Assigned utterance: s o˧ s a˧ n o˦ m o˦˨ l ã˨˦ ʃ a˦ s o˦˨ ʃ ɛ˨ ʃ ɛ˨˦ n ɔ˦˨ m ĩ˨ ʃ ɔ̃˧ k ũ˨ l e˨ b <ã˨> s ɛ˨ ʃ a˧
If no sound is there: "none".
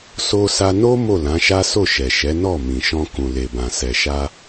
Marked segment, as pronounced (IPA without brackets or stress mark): ã˨